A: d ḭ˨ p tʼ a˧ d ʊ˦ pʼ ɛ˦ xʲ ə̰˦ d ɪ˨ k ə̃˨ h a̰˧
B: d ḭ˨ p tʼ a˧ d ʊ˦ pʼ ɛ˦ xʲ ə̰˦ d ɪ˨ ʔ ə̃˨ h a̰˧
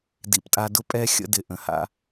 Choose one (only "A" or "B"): B